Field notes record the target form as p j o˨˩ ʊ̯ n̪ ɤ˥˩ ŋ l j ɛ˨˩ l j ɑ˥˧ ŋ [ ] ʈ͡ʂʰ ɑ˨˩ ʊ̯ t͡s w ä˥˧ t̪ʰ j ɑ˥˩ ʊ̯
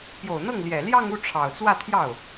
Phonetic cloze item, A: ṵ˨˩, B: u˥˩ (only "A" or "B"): B